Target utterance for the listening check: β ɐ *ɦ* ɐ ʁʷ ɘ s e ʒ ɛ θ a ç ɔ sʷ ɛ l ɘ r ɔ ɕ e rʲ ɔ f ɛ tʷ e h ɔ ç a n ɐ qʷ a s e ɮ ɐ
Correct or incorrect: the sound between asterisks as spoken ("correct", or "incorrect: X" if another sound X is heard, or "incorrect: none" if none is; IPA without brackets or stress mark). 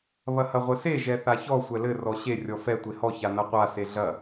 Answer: incorrect: h